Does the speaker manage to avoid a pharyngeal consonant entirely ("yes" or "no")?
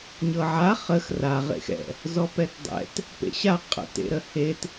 no